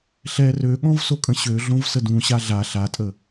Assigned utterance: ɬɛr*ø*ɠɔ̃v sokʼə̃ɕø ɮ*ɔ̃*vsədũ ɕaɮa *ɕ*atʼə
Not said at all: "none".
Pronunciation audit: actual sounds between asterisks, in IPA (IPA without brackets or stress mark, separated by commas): ø, õ, ɬ